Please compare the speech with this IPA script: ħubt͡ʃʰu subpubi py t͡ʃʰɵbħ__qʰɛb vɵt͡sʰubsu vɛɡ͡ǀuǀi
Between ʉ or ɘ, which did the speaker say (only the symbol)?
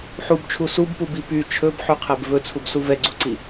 ʉ